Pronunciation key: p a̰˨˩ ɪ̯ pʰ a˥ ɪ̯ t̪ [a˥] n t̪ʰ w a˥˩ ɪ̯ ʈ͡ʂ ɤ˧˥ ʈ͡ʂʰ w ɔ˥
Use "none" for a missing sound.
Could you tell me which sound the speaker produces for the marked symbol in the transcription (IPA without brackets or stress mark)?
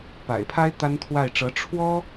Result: a˥